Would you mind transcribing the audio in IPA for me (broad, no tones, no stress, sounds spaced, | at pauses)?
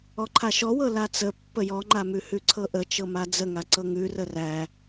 ɔ ǃʰ a ʃ ɔ w ɤ l a t͡s ə pː ə j ɔ ŋ͡ǃ a m ʉ h ʉ ǀʰ ɤ ʔ ə t͡ʃ ɤ m a d͡z ə ŋ a ǀ ɤ ŋ ʉ r ə r æ